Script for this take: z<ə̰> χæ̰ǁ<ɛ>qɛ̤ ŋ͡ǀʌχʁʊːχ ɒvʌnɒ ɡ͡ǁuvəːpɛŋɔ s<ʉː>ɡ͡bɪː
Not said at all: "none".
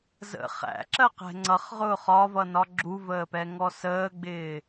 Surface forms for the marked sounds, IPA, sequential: ə̰, ɜ, əː

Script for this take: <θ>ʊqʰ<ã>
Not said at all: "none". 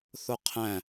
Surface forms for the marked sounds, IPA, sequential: θ, æ̃

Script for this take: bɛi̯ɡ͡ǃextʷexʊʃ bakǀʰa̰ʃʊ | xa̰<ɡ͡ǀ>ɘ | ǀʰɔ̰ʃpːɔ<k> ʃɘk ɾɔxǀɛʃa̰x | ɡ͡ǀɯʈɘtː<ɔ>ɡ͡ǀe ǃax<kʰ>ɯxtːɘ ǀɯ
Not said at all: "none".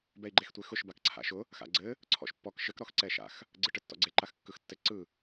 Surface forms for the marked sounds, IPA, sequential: ɡ͡ǀ, k, ɔ̰, kː

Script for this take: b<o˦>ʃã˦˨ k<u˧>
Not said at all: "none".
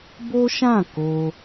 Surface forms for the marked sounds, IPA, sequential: o˦, o˧

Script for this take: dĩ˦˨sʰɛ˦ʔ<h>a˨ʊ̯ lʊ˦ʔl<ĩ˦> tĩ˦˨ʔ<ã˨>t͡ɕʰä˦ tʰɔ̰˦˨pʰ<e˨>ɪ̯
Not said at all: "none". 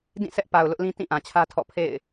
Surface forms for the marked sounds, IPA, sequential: p, ĩ˦, ã˨, ḛ˦˨

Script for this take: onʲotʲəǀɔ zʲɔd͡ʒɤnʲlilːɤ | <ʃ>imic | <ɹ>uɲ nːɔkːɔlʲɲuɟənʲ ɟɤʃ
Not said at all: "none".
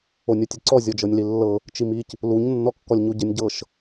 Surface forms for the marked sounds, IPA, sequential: t͡ʃ, l

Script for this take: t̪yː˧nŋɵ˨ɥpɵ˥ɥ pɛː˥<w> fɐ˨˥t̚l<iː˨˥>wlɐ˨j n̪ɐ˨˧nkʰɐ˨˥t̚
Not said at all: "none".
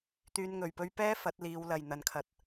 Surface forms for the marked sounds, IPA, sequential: none, iː˨˧

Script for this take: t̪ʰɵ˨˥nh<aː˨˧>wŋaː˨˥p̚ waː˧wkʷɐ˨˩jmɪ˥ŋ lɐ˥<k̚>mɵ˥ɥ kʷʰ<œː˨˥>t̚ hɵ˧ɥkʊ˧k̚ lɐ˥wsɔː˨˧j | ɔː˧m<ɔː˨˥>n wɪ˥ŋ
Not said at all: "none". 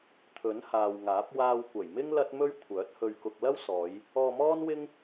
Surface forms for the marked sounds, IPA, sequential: aː˨, t̚, œː˨˥, ɔː˥

